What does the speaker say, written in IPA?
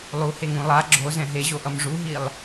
lˠ u h e ŋ ũ lˠ a ɡ͡ǁ o z ɛ̃ ɦ e ʑ o ʔ ʌ m ʐ u ɦ i lˠ

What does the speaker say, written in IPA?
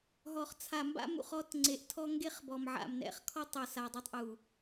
ɦ ɔ˨ χ t͡sʰ a˨ m b a̰˦ m ṵ˨ χ ɔ˦ t ŋ͡ǀ e˨ ʔ tʰ ɔ˦ ŋ ɡ e˦ χ b ɔ˨ m ʕ a̰˨ m n ɛ̰˨ χ kʰ ɔ˦ tˤ o˨ s a˨ dˤ u˦˨ tˤ ʔ u˨

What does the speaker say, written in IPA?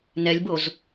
n ɛ lʲ b o z

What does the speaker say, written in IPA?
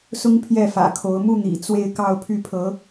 s ʊ˥ ŋ pʰ j ɛ˥˩ f ä̰˨˩ kʰ o˧˥ ʊ̯ m u˥˩ n̪ ḭ˨˩ t͡s w e˥˧ ɪ̯ k ɑ˥˧ ʊ̯ pʰ y˥˩ pʰ ɤ˧˥

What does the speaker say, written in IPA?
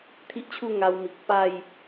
t̪ʰ i˦ ʔ t͡ɕʰ u˥˧ ŋ a˧ w m i˨ k̚ p a˥˧ j

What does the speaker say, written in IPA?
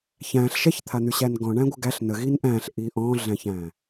ç æ̃ ɬ ʃ ɛ ç t̪ʰ a n̪ y ɕ æ n ɡ ɔ̃ ɳ æ̃ ɡʷ ə ɡ æ ɬ n ə ɣ i n ʔ æ̃ ɬ ʔ i ʔ ɔ̃ ɮ æ̃ ç æ̃

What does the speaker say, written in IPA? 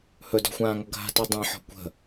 h ɵ d ɔ̤ xʷ ãː ŋ ʌ ɡʱ a̤ t i dˤ ĩ ħ ɔ̤ kʷ ə̤

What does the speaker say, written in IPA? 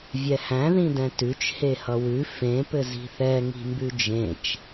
vʲ ɛ h æ̃ ð ĩ d ɛ̃ t ʉ t͡ʃ h e h ʌ w ʉ f ẽ p ɘ z i̤ θ ɛ ŋ i̤ m b ʉ d͡ʒ ẽ t͡ʃ

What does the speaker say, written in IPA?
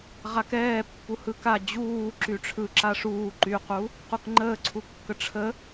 ʁ a k ɛː pː u h ɯ k a d͡ʑ uː ǁ y ʈ͡ʂʰ ɯ ǁ a ʂ uː ǃ y q u | q u k ŋ͡ǃ əː ǀʰ u kː ə ʈ͡ʂʰ ə

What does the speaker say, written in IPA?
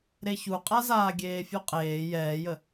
ɾ e ç u qʼ a z aː ɡʲ eː fʲ u qʼ eː j ɛː j ə

